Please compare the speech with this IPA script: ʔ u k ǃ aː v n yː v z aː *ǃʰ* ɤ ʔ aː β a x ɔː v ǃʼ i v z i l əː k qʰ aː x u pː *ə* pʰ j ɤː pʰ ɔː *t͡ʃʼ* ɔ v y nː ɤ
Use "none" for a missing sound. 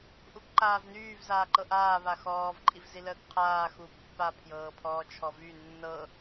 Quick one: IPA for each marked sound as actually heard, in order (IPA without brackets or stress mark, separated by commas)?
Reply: ǃ, a, t͡ʃʰ